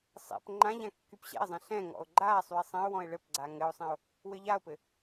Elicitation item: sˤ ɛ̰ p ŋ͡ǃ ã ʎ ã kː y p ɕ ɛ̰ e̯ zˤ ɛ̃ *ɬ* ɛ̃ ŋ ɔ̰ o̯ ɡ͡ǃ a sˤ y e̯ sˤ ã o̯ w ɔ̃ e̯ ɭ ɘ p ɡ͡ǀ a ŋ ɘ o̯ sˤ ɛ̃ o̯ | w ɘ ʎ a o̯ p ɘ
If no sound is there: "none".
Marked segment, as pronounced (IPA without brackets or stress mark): ɬ